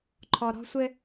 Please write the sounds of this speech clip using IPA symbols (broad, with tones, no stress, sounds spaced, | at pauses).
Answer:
ǃʰ ɔ˨ ɾ ɔ̤˦ sʷ ɘ˦